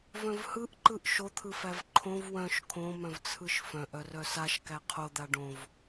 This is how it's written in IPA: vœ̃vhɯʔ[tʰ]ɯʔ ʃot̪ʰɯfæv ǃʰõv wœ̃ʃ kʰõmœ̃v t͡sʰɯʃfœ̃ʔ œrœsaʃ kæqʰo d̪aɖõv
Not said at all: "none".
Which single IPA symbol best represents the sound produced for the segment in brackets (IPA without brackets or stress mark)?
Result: ǃ